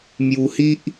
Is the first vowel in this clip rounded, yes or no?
yes